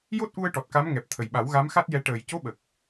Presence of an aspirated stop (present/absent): present